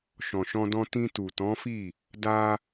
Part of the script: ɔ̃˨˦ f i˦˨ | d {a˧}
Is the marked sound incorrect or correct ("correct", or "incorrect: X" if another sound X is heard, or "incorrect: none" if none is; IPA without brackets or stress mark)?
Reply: correct